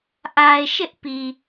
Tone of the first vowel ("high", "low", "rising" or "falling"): low